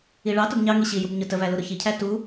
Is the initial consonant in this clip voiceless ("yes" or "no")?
no